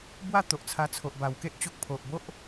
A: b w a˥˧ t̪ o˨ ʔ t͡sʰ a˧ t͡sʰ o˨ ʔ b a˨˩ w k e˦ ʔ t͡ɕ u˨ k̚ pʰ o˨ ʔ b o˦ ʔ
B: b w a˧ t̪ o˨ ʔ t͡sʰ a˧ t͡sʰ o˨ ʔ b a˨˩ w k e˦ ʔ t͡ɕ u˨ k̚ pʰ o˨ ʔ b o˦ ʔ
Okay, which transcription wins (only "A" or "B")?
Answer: A